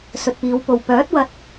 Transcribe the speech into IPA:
sɵ˨t̚piː˨˧wpo˨w pœː˨˥t̚wɐ˧t̚

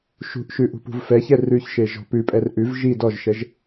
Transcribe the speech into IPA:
ʃṳʔʃʉ ʔṳpṳvfɛçɛ rʉçʃe ʒɔ̤pʉpʼɛr ʔʉv ʒi dɔʒʃɛʒ

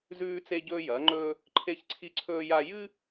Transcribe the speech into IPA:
zʉː˥t͡se˥ɟɵː˥ jɐː˨˥ŋ͡ǃɵː˥ | ǃʰe˥çǀʰi˥ǀʰɵː˥ja˥ jɨ˥

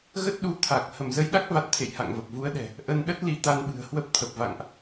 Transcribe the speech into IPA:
ɣə˦˥t̚ɗu˨˦ t̪ʰa˨˩k̚ hə˧˩mzə˧jɗa˦˥k̚va˨˩t̚ t̪ʰḛ˧˨jha̰˧˨ŋvə˨˩p̚ vu˨˦ə̯ɗɛ̤˨˩ | ʔə˧nɗə˦˥t̚li˨˦ t̪a˧nɓɨ̤˨˩ə̯hwə˦˥p̚ t̪ʰə˨˩p̚va̰˧˨ŋʔ

